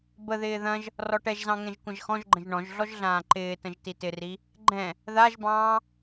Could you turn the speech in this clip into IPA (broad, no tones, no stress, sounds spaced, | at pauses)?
b ə ð ɪː ð ɐ̃ ʒ | r ɔ ʈ ɛ ʒ z ɑ̃ ŋ ɛ̃ ʒ kʷ ɐ̃ ʒ x ɔ̃ ʒ ɡ͡ǃ ə̃ ʒ ɳ ɔ̃ ʒ ɮ ɔ ʒ ɮ ãː ǃ ɪː t ə̃ ʒ t i t ɪ r i | ɡ͡ǃ ɛ̃ | ð a ʒ b ɑ̃ː